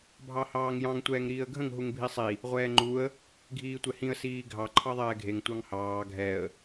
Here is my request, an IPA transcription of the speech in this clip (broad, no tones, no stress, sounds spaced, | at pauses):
bʱ ɑ h ɑː ŋ j ɑ̃ ŋ tʷ ɛː ŋ ɾ iː ə̯ ɡʱ ə̃ ŋ ɦ u ŋ bʱ i sˤ i | ʁʷ ɛː ŋ͡ǃ u ə̯ | ɡʱ iː tʷ ɛ h ĩ ə̯ s iː ɡʱ ɑ ǃʰ ɑ ðˤ ɛː ɡʱ e ŋ tʷ ɑ ŋ h ɑː ɡʱ ɛ ə̯